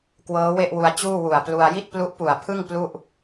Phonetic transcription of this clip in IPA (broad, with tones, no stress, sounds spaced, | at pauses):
k w ɤː˦˥ w e˥˩ ʔ w u˧ a̯ t͡ɕ uː˥˩ w u˨˩ a̯ p l u˧ a̯ j i˥˩ t̚ p l u˦˥ ʔ p u˨˩ a̯ pʰ ɯ˥˩ ŋ p l u˥˩ ʔ